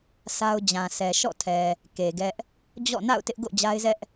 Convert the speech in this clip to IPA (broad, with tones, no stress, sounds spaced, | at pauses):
sʰ a˦ ʊ̯ d͡ʑ ã˨ sʰ ɛ˨ ʃ ɔ̰˦˨ tʰ ɛ˨ | k e˨ ɡ ɛ˦ ʔ | d͡ʑ ɔ̰˦˨ n a̰˦˨ ʊ̯ t ɪ˦ ʔ ɡ o̰˦˨ d͡ʑ a˦ ɪ̯ z ɛ˦ ʔ